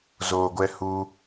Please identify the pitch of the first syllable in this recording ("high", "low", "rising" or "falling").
low